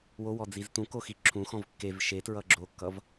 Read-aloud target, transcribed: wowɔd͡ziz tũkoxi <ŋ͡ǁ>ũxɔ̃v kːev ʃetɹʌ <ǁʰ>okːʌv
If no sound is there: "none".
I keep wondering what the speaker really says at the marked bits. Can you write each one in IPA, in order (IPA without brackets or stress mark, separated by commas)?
ǁʰ, ɡ͡ǁ